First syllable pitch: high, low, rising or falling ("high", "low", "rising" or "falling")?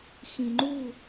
low